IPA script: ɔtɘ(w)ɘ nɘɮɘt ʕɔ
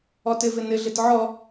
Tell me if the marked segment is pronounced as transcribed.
no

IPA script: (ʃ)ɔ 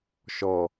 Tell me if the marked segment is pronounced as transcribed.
yes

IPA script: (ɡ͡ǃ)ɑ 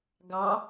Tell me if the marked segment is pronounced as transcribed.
no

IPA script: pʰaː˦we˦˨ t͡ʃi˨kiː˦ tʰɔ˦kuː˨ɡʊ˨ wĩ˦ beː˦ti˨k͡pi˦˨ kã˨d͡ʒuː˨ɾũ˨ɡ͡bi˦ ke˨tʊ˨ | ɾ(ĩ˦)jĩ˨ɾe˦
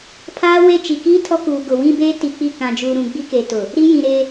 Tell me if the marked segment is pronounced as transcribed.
no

